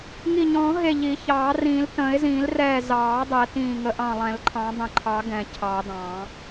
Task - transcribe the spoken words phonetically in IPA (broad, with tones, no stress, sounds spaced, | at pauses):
ŋ i˧˩ ɲ ɔ̃ː˨˩˦ ɦ e˧˩ ʎ i˨˩˦ ç ɑː˨˩˦ r ĩː˨˩˦ l t ə̃ː˨˩˦ ɪ̯ z ĩː˨˩˦ l r ɛː˧˩ z ɑː˨˩˦ dˤ ɛ˨˩˦ t ĩː˧˩ ŋ ə˨˩˦ ʔ ɑ̃˧˩ lˠ ɛ̃˨˩˦ l ǃʰ ɑ̃˨˩˦ dˤ ə̃˨˩˦ ǃʰ ɑ˨˩˦ ɡ ɛ̃˧˩ cʰ ɑ˨˩˦ d ɑ̃˨˩˦